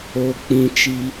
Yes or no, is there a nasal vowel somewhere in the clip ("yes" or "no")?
yes